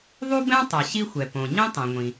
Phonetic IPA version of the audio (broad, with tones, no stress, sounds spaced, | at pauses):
ðˤ u˥ b ɛ̃˥ tˤ o˩ ɕ i˥ xʷ ɛ˩ p õ˩ ɲ ĩ˥ tˤ ẽ˩ ŋʷ ĩ˩